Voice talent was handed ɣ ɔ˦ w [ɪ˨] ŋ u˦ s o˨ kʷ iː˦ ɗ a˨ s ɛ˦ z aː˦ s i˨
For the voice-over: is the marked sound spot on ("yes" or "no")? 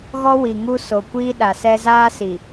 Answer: no